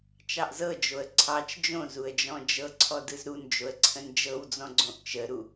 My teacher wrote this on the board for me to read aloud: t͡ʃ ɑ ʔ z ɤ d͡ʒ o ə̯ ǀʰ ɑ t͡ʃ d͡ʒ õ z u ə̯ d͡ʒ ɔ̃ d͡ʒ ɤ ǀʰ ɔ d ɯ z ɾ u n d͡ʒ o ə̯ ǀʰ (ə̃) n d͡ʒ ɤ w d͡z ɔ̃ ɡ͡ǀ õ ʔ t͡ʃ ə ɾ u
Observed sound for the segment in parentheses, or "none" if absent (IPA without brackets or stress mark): ə̃